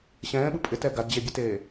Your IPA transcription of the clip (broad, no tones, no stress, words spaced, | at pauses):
ɕɛ̃ːɓɯ pʼɪtɛ ɡadd͡ʑebʲɛteː